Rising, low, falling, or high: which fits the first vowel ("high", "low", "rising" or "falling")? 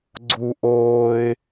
high